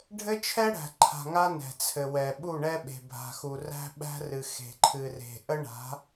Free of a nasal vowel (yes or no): yes